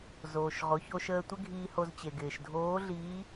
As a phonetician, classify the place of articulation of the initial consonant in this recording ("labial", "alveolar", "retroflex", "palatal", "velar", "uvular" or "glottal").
alveolar